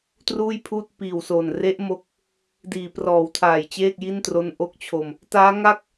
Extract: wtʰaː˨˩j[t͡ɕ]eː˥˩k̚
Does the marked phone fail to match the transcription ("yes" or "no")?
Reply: no